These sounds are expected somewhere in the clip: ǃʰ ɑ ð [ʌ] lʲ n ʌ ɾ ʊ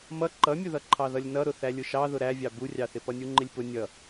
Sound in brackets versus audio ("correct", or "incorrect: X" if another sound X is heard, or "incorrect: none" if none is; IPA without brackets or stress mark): correct